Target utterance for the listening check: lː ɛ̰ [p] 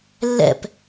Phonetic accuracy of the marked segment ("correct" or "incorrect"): correct